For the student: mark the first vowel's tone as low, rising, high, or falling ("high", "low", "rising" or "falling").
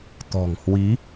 low